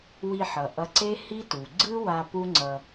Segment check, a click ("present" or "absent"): present